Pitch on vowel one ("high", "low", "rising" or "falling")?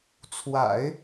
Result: low